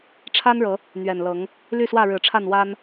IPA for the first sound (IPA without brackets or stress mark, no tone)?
ʈ͡ʂʰ